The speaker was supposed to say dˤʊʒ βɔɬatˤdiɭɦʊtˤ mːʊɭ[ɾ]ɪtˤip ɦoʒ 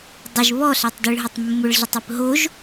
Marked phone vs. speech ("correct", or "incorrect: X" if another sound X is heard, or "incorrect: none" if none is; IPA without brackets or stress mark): incorrect: ɮ